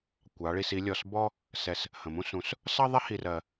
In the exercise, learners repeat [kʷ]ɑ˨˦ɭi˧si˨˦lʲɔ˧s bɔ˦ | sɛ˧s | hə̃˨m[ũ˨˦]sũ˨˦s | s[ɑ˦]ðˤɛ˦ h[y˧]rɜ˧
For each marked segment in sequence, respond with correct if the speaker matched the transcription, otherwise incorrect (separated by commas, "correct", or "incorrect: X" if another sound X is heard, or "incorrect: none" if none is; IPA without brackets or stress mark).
correct, incorrect: ũ˦, correct, incorrect: i˧